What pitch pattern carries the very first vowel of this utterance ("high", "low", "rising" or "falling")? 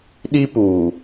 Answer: high